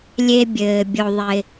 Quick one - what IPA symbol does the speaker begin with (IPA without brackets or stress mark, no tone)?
lʲ